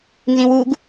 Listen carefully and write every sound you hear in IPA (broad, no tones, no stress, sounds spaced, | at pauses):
n z ĩ w u ɡ